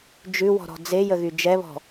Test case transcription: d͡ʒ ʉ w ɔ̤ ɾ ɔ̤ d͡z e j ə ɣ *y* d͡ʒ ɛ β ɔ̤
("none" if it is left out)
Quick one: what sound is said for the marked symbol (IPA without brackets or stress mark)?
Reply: y